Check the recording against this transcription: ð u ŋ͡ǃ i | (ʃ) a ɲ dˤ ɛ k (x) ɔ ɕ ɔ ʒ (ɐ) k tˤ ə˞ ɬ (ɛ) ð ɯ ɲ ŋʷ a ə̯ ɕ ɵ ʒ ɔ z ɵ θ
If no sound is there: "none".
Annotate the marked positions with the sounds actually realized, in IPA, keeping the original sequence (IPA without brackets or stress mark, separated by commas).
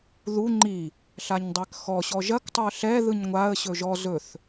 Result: ɬ, x, ɐ, ɛ